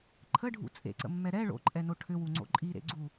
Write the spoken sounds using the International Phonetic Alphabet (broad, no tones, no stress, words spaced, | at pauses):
ǃʰəɖʱṵ t͡sʼḛǀə̰mːɛ ɾɛ ɭo̰ǃʼɛno ʈʰʏwuŋ͡ǀo̰ ǃʼiɾḛɡ͡ǀu